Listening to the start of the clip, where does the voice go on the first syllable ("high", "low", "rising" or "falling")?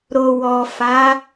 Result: low